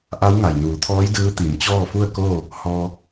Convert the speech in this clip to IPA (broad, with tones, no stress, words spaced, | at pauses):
ʔa˧˥w ŋa˩jnuː˩˧t̪ʰɔː˧˥j dɯː˧˥t̪i˩˧m t͡ɕɔː˥˨fu˥˨ə̯koː˥˨ | hɔː˧